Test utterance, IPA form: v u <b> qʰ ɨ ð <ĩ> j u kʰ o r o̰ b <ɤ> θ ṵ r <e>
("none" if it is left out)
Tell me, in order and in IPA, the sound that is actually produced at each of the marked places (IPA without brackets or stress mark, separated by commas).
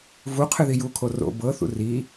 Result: none, i, ɤ, i